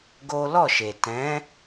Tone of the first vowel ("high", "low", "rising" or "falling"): high